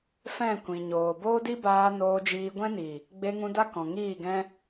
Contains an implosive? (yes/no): no